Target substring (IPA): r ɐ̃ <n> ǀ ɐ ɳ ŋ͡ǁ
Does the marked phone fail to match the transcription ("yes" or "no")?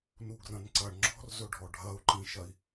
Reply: no